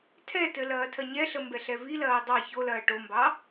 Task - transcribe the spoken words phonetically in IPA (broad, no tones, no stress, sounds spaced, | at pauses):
tʰ ɛ t ɘ l ɐː tʰ ɐ ɲ ɛ ɬ ə m b ɛ ɬ ɛ v i l ɐː dˤ ɑ ç o l ɐː ʈ o m b ɑ